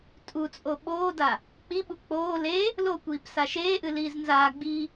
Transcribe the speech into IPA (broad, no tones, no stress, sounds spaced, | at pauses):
tʼ u t͡sʼ o ɓ oː d a | k͡p i ɓ u k͡p oː l e | l o kʷ iː p s a ʃ eː ʔ ɨ l iː z n z aː ɡ͡b iː